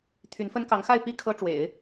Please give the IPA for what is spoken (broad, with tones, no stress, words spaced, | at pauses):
t̪ʰy˧˥n fə˥n kɑ˧˥ŋxa˥˧ɪ̯ pi˥˩ kʰɤ˥ ʈ͡ʂwḛ˨˩˦ɪ̯